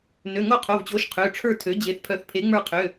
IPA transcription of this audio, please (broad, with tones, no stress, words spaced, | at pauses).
nø˩˧˩ŋo˦˨qʰo˩˧˩vt͡ɕo˩˥ʃ qʰø˩˧˩ʈ͡ʂʰə˞˦˨tʰø˩˥ d͡ʑe˩˧˩θpʰœ˨˩˦θpʰe˩˥ŋ͡mə˞˦˨ qʰø˩˧˩